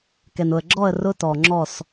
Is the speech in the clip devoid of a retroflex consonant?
yes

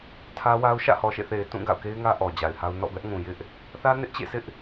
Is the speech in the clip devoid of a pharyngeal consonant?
yes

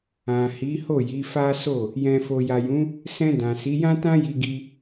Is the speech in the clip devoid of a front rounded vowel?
yes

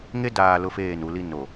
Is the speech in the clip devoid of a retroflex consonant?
yes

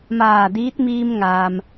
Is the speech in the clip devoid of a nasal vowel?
yes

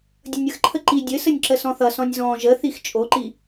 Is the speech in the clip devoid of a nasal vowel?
no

